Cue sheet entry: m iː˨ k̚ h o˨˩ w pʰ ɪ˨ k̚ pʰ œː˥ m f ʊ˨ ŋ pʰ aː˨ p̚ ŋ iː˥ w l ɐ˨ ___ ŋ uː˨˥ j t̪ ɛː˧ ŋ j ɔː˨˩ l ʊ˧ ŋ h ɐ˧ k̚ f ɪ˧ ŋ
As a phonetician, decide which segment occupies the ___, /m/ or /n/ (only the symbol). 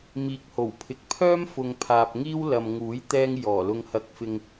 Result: m